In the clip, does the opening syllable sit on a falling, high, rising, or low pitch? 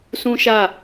high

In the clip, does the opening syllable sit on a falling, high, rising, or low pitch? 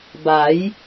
rising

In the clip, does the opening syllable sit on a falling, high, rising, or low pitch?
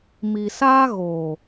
low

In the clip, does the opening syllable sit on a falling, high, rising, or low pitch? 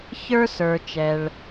high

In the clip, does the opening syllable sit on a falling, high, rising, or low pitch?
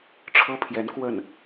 falling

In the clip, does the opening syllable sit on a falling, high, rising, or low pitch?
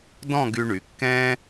falling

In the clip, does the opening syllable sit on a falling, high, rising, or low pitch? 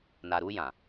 low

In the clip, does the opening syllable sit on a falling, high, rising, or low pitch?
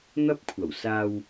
high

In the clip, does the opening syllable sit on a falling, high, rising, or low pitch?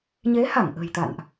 rising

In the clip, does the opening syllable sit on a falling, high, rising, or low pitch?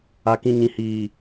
low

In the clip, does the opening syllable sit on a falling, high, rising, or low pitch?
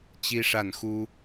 high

